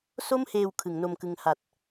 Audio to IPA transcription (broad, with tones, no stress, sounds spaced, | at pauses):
s o˥˩ m h eː˧ w kʰ ɯ˩˦ ŋ n o˧ m k ɯ˧ ŋ h a˨˩ t̚